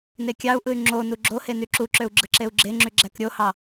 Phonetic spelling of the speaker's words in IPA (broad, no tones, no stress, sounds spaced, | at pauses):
n e kʲ ɑ u̯ ʔ ɯ y̯ ŋ͡ǁ o n u ɡ͡ǁ o h e n y ǁ u ǁ ø u̯ ɡ͡ǁ ɯ ǁ e u̯ ɡ͡ǁ e ŋ͡ǁ y ɡ͡ǁ æ k ɾʲ o h ɑ